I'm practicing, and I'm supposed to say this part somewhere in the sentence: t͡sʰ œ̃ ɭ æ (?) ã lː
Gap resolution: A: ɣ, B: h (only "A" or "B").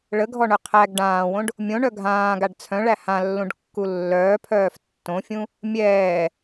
B